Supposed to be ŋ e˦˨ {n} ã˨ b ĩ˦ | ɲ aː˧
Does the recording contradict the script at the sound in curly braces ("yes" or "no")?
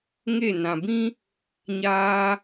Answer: no